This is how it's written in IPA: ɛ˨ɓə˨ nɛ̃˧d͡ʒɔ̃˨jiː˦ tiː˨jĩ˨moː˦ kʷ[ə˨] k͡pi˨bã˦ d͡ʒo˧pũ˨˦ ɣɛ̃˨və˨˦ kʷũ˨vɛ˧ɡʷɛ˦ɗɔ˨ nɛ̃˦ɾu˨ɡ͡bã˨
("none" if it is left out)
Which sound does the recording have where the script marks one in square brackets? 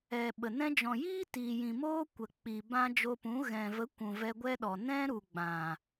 ə˨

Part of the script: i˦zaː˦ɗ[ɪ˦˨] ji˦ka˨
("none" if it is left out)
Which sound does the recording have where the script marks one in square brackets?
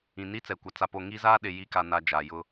ɪ˨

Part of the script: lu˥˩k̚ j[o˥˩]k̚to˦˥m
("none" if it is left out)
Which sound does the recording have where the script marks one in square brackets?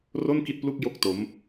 o˥˩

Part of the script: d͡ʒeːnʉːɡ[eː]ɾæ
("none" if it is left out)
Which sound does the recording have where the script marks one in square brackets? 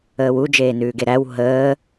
e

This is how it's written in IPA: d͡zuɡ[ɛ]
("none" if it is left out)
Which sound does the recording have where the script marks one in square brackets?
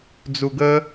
ə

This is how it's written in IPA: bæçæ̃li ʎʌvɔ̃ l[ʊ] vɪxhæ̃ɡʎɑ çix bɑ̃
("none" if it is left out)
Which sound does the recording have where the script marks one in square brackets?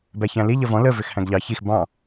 ə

